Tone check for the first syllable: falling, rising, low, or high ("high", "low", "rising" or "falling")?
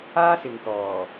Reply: high